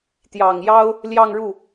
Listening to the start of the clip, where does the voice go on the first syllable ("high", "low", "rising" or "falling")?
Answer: low